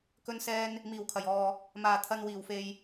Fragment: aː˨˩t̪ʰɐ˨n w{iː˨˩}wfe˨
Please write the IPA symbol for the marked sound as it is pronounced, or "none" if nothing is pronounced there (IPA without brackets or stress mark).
iː˨˩